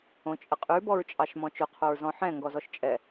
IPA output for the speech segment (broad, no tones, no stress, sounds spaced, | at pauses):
õ t͡ʃʼ ə qʼ ʉ b ɔ ɹ t͡ʃʼ ɑ ʃ m ɔ̃ t͡ʃ ʊ qʰ o ɹ z ɔ̃ ħ ɛ̃ ŋ ɡ ɔ z ɔ ʃ t͡ʃʼ ɛ